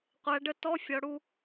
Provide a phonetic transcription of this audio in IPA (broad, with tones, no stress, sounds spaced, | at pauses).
qʷ æ˩˧ ɖ ə˧ t ɔ˧˥˧ fʲ ɔ˩˧ ɽ u˧